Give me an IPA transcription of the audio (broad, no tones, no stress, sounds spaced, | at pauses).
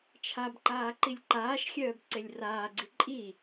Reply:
t͡ʃʰ a b ǃ aː ǃ i lʲ ǃ aː ʃ xʲ œː b ǀ e lʲ r aː ɡ͡ǀ i ǃʼ i